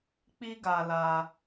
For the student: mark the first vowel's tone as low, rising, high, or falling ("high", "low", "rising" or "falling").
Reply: high